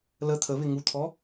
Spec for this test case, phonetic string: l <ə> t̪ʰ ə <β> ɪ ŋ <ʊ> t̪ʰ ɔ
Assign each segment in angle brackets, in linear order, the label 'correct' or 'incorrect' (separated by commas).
correct, correct, incorrect